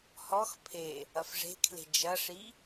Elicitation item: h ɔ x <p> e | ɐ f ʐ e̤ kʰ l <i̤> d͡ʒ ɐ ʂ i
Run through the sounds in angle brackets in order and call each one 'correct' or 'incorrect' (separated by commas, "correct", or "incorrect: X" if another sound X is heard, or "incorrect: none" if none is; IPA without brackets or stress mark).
incorrect: pʰ, incorrect: e̤